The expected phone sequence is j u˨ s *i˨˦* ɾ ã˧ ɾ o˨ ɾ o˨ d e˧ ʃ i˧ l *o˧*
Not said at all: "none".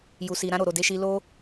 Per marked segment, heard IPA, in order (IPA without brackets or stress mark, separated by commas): i˨, o˦